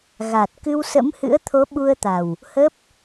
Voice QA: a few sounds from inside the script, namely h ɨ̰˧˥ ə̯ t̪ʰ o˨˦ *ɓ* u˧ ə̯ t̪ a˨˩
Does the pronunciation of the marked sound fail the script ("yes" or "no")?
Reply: no